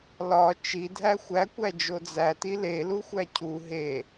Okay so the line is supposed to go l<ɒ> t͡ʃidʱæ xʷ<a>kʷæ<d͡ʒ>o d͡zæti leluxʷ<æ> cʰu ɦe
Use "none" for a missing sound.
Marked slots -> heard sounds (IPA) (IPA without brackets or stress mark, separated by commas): ɒ, æ, d͡ʒ, æ